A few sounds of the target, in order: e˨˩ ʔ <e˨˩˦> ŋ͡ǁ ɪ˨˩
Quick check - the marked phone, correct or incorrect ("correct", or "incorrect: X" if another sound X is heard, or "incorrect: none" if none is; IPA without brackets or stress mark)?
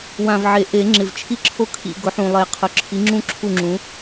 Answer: correct